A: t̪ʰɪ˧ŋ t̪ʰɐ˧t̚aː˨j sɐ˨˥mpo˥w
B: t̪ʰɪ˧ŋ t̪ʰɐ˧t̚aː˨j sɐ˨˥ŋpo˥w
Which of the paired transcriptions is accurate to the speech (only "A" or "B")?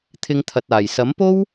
A